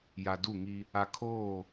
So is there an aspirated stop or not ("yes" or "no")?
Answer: yes